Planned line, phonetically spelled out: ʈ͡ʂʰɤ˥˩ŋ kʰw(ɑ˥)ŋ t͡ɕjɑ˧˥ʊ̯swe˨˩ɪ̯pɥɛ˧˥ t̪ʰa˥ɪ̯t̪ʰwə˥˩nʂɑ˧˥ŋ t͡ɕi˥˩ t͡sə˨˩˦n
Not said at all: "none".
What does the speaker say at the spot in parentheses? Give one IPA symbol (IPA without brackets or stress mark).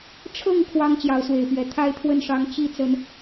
ɑ˥